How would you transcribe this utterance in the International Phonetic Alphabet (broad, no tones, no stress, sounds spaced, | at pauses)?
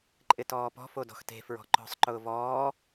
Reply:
ǃʼ ɪ t ɔː p ɔ̤ f o d ɔ̤ x t e̤ f ɹ ɔ̤ ǃ ɔ̤ sˤ ǃ ʊː v ɔː